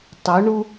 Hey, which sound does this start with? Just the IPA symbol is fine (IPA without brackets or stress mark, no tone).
tˤ